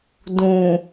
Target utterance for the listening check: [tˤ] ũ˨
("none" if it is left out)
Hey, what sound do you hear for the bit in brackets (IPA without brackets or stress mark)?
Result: d